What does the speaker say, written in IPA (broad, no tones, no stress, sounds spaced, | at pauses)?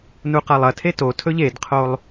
n u q a lˠ ɐ tʰ e t o tʰ ɵ ʎ e d qʰ o lˠ